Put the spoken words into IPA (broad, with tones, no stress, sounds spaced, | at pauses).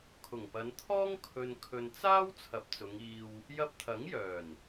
kʰ ʊ˨˩ ŋ p ɐ˨˧ n t̪ʰ ɔː˥ ŋ kʰ ɵ˨ n kʰ ɵ˨ n t͡s aː˥ w t͡sʰ ɐ˨˥ p̚ t͡s ʊ˨˧ ŋ iː˧ w | j ɐ˧ p̚ t̪ʰ ɐ˨˥ ŋ j œː˨˩ n